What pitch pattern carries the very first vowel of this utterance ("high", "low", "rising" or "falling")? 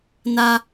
high